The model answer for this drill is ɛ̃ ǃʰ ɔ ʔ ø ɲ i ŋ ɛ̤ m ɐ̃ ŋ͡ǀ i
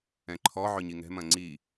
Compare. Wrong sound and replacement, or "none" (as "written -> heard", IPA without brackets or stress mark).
ʔ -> ʕ